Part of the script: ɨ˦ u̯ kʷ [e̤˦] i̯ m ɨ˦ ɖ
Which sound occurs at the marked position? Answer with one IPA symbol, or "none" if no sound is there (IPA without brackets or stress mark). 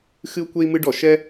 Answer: e˦